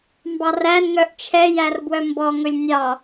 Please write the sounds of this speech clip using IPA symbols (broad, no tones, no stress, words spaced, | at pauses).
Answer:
mbɑrænŋœʔ t͡ʃʰɛ jærbwœmbɔŋɵlʲ nʲɑ